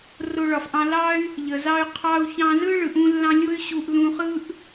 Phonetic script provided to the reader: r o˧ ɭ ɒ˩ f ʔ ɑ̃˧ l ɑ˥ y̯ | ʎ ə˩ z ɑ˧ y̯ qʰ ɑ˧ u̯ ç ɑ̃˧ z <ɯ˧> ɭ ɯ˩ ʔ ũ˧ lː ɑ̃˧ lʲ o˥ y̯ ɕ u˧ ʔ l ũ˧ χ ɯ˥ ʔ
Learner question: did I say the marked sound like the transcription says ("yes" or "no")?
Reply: no